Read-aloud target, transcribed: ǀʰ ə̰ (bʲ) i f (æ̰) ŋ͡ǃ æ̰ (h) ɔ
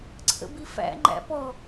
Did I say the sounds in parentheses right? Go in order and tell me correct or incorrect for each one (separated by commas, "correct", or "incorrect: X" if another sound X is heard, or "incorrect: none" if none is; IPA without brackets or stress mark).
incorrect: b, correct, incorrect: p